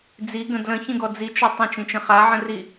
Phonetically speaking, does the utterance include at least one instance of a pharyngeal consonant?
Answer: yes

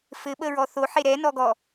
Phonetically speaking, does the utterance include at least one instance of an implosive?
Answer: yes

